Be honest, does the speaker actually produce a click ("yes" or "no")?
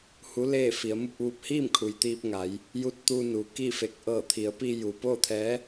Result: no